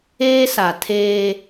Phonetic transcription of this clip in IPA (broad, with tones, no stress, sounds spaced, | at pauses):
eː˦ s a˨ tʰ eː˦